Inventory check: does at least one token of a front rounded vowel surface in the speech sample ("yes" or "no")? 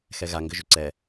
yes